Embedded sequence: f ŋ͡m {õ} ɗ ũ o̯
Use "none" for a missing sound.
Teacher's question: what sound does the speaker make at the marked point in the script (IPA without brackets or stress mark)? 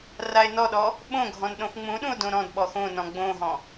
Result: ũ